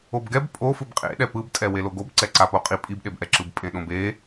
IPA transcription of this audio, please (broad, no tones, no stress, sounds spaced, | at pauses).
o b ɡ ɛ b pʼ o f ɯ b qʼ ḛ ɗ ɛ p ɯ b tʼ ɛ w e l o ɡ o b ǀ ɛ ǀ a p o qʼ i pʼ i b ɗ e b ʔ ɛ ǁ ɯ b pʼ ẽ ɗ õ b e